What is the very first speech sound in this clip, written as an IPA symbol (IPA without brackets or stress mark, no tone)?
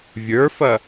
vʲ